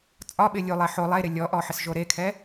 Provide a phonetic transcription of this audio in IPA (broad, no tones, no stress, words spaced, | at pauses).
t͡sʼɒɓɪ lʲulˠe ħo lˠeɾɪ lʲɔʔɔ ħɪsʒoɾekʰɛ